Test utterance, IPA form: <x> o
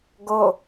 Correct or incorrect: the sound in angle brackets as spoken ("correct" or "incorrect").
incorrect